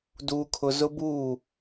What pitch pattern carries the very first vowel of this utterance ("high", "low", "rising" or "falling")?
high